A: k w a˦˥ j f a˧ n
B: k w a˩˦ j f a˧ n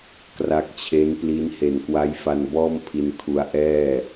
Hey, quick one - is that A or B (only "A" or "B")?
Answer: A